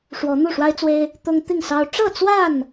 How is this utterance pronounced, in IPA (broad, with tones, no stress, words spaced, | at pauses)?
ʂwɔ˨˦n̪u˥˨ʂwa˦ɪ̯t͡swe˦ɪ̯ | t̪ʊ˦ŋ t̪i˥˨ŋsɑ˦ʊ̯ ʈ͡ʂɤ˥˨t͡swa˥˨n